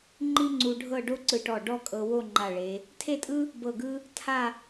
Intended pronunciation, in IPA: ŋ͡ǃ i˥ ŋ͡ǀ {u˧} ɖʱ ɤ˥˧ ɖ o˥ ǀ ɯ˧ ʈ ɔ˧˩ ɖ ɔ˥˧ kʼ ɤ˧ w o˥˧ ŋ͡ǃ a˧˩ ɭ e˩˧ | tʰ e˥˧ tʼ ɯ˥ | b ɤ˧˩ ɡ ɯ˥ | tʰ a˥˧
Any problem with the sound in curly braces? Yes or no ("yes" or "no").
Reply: no